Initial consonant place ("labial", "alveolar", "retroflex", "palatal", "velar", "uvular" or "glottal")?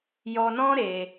palatal